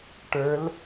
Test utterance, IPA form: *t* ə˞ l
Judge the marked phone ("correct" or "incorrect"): incorrect